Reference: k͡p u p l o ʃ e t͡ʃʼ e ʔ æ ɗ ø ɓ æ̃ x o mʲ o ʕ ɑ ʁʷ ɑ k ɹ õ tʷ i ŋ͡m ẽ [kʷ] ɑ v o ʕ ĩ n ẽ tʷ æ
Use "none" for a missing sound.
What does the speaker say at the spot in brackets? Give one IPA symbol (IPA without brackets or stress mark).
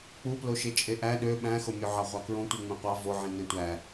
qʷ